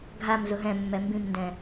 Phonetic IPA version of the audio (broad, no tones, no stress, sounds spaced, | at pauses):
ɡʱ a m z ʊ ɦ ɛ̃ mː ɛ m b ĩ m n d ɛ̃